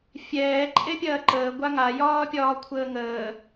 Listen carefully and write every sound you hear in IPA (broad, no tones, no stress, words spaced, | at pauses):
fʲɛː ǃʼepʲɐːǃəː ɡʷaŋa jɒːpʲɒːkʷʰəːŋəː